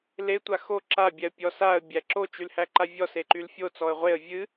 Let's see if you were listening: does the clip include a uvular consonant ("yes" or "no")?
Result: yes